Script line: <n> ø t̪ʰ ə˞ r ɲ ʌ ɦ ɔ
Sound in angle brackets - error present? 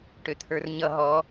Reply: yes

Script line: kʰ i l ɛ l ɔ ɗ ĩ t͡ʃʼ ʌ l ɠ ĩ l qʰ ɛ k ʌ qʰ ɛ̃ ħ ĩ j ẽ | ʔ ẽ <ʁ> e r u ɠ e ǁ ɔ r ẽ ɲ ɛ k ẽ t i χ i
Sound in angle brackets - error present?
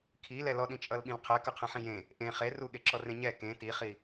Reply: yes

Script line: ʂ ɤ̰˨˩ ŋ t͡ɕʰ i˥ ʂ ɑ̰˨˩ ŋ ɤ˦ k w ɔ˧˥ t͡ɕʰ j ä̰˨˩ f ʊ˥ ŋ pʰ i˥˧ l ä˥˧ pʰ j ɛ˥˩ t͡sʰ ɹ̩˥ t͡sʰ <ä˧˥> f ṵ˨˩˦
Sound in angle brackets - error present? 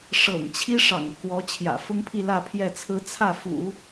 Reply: yes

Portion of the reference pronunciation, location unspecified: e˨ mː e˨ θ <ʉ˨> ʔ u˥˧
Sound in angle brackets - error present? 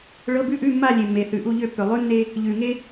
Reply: no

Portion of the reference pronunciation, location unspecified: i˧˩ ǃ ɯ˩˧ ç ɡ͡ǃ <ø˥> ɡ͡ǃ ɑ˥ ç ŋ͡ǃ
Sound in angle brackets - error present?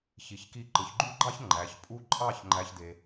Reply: yes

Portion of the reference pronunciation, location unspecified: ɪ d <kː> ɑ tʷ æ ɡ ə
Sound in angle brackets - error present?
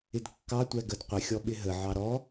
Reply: no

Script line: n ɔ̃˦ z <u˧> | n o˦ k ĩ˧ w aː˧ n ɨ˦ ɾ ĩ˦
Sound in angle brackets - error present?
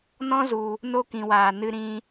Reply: no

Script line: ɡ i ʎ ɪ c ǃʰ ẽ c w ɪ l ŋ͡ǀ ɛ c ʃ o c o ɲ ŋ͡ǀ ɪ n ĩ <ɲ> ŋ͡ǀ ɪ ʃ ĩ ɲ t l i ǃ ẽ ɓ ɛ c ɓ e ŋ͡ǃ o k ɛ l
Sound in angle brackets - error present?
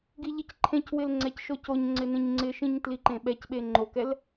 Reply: no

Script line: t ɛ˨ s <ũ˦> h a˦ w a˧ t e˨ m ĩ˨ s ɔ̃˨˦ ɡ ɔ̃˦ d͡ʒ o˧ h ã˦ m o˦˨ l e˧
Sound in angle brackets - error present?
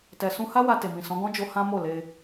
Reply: yes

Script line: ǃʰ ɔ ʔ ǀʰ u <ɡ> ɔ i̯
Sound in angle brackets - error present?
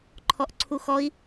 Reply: yes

